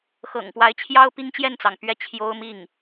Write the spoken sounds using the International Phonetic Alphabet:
xɤ̰˨˩ŋ pwa˧˥ɪ̯t͡ɕʰjɑ˥ʊ̯ pi˥ŋt͡ɕjɛ˥˩nt͡sɑ˩ŋpɥɛ˥ t͡ɕʰjo˥ʊ̯mi˥˩ŋ

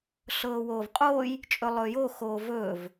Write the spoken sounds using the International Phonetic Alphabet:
ɬɤːwoːvqʼoːj | t͡ʃʼɵlˠɵːjo xoːvɵːv

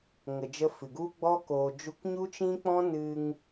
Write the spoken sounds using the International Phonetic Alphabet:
ŋə˨d͡ʒə˧ fɨ˨ɡu˦ɡ͡bɔ˦ koː˨d͡ʒu˧k ɲu˦t͡ʃĩ˦k͡pɔ̃˦nɨ˧ŋ

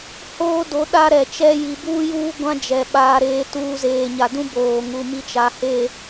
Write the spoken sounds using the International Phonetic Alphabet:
hoː˦do˨˦ ɗa˦ɾɛ˨t͡ʃɛ˦ ji˨buː˦juː˦ɡʷã˦ d͡ʒɛ˨ɓaː˦ɾeː˦tuː˦ zeː˨ɲa˨dũ˦ boː˨ŋu˨ mi˦t͡ʃa˨he˦˨

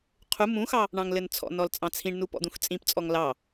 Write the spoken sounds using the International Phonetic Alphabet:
qʰu mũxɑ | ɳɑ̃ŋlɘnt͡sʰɔ̰nɔl t͡sʼɑ̃t͡sʰĩɳnu pɔ̰d̪ũxt͡sʼĩpt͡sʼɔŋ lɑ

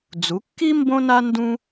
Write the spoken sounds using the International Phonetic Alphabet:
d͡zu˩˥kːi˥ mbõ˥na˥ ndũ˥

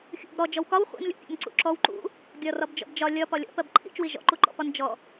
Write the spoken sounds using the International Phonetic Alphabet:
xʲṵb ɾɔ d͡ʒɔwkɒw χʷḭnlʲṵ pʲɔ̰nǀṵǁɔw ǃṵ | ɡʲɒrɒbd͡ʒɔ̰bd͡ʒɒ lʲɒ pɒlʲɔ̰ pɜbǃʰḭt͡ʃwi ʒɔ̰ǃuǃɔ̰pɒn d͡ʒɔ

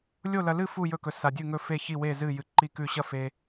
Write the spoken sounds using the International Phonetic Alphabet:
lʲo˥˨lɐ˧lɨ˥˨ fu˥˨jɵ˥˨kɵ˧ sa˧dʲʉ˥˨ŋɵ˥˨fe˥˨ çi˥˨we˥˨zɨ˥˨ jɨ˧ǃi˥˨kʉ˥˨ ɕɐ˥˨fe˧

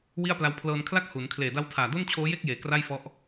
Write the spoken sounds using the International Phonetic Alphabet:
wi˥˩a̯pla˦˥w pʰlɤː˧nkʰla˥˩k̚ hu˩˦n kʰleː˨˩da˦˥wtʰaː˨˩do˥˩n t͡ɕʰoː˦˥je˥˩k̚jeː˩˦ kra˥˩jfɔ˦˥ʔ

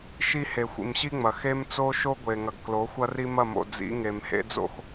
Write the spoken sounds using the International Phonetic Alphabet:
ʃi˦ he˨xʷḭ˨mɕi˦ŋ͡mɐ˨ xe˦mt͡so˦ʃo˦ ɡʷe˨ ŋɐ˨ɡklo˨˦ xʷɐ˦ri˦mɐ˦˨mo̰˨ d͡zḭ˨˦ŋe˨m hḛ˦d͡zo̰˦x

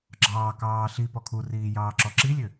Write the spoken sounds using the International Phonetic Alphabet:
ɡ͡ǁɑːkɑː ɬi pɔkʰuriː jɑːǁɔǁilʲø

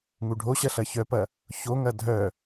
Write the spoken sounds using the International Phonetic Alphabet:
ŋuɖʱoɕɐ ɬɐçœpɐ | çoŋɐ dʱœ

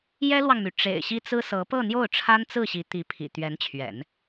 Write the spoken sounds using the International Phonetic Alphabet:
jɛ˥lwɑ˨ŋmy˩ ʈ͡ʂḛ˨˩ɪ̯ ɕi˥t͡sɹ̩˥sɤ˧˥ pɤ˥˧n̪jo˥˩ʊ̯ ʈ͡ʂʰa˥nt͡sɹ̩˥˩ɕi˧˥ t̪i˧˥pʰḭ˨˩ t̪ɥɛ˧˥nt͡ɕʰɥɛ̰˨˩˦n

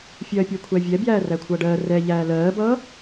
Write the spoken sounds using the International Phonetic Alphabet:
fʲɜːpʲækʷʰævʲɛ bjæːrækʷʰʌːɖɜː rɛ ʎæːlɜːbʌː

